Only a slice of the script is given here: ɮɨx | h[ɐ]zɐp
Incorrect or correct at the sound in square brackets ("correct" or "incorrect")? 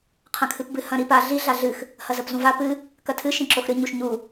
correct